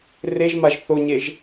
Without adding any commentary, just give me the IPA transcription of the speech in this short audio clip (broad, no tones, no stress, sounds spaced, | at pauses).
r e ʒ m a ʒ θ o ɲ e ʒ